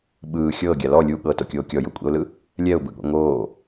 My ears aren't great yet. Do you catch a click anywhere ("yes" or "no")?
no